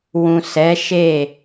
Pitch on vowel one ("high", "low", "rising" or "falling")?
low